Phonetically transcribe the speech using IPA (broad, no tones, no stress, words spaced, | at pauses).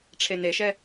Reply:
ʈ͡ʂʰeneʃɛ